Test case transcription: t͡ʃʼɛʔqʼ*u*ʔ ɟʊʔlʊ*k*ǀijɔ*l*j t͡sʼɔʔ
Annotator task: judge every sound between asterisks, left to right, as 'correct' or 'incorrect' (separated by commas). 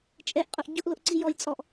incorrect, incorrect, incorrect